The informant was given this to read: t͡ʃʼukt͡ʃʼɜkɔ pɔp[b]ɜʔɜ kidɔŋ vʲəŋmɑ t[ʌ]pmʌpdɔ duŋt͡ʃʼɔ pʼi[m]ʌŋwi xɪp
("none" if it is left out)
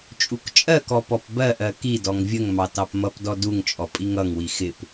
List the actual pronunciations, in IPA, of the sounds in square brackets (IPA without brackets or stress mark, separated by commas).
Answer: b, ɑ, ŋ